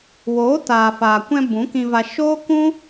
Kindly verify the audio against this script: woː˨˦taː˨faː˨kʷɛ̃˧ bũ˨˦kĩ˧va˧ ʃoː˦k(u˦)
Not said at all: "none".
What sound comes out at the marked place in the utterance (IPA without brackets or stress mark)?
ũ˦